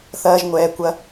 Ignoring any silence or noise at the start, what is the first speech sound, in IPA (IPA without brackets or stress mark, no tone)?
θ